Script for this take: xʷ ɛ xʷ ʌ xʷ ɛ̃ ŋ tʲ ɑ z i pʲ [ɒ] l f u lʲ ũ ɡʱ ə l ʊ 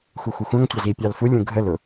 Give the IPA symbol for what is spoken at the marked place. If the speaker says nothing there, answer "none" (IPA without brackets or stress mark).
ɑ